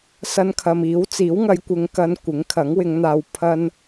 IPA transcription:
sɐ˧nkʰɐ˨miː˨˥w t͡siː˨˥wŋɐ˨˧jkʷɪ˨ŋ kɐ˧n kʷɪ˨˥ŋkʰɐ˨˥ŋwɪ˨˧ŋn̪aː˧w pʰɐ˥n

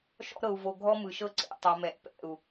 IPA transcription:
ʃɔ̰˦ɾɤ˨u̯ vo˨ɡʱɔ˦mɯ˨ʃɤ˦ ǀḛ˨ tˤo˨mɛ˨ʔ pɛ̰˦˨u̯

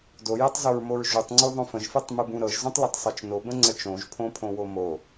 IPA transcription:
dojɨtˤzoɹmoɹ ʒutˤŋ͡ǀuðˤõ fə̃ʒfɨtˤmɨbũ ɾɤʒzũtˤlʌtˤsˤɜt͡ʃ nobə̃ŋ͡ǀə t͡ʃõʒpʰõpʰõwo mo

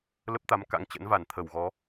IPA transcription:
lə˦˥p̚t̪a˨˦mka̰˧˥ŋ t͡ɕə̰˧˥nva˧˩n t̪ʰə˧˩wɣɔ˨˦

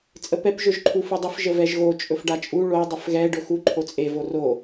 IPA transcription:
t͡sʼəpɛp ʒɵʒǃʰufudˤəf ʒəvɛʒɣo t͡ʃʼɵfɖat͡ʃʼu ɭo dˤəfɣɛ ɖɵxu ǃʰot͡sʼe voro

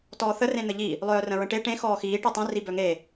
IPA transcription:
tɔːθə rẽn̪əʎi | lˠœːrə̃ɹə̃ʈe ʈẽ xɔːxiː ʈitˤẽ ribœŋe

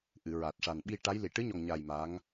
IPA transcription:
ʔɨ˨˩˨ ɹa˨˩t̚ ʂa˨˩nɓi˧ʈa˧˥j li˨˩˨ʈɨ˧˥ɲɔ˨˩ŋɲa˨˩j ma˧˥ŋ

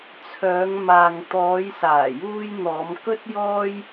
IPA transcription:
t͡sʰœː˨˧ŋmaː˨ŋ t̪ɔː˨˧jsaː˨˩juː˧jn̪ɔː˨˧m kɵ˧t̚jɔː˧j

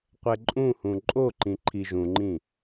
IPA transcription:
qʷɛǃʼũhũ ǃʼoǃĩ ǃʰiʒũŋ͡ǃĩ

